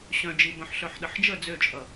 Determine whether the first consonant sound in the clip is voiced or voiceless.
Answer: voiceless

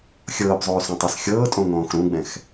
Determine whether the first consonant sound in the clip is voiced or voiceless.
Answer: voiceless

